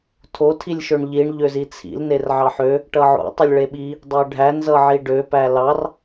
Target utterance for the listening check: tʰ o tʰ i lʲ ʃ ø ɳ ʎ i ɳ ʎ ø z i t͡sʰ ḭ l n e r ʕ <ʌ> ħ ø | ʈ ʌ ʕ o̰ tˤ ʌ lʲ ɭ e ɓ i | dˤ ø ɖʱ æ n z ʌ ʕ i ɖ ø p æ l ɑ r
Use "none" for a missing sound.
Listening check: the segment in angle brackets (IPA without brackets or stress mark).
ɑ